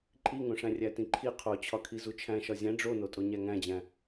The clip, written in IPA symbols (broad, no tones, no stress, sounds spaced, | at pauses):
ǃʼ i ŋ õ ʂ æ̃ rʲ æ t ĩ ǃʰ i qʰ o t͡ɕʰ ɒ kʰ i z u t͡ʃʰ æ̃ ʃ ɒ zʲ æ̃ ɖ͡ʐ o n o tʼ o ɲ æ ŋ æ̃ d͡ʑ æ̃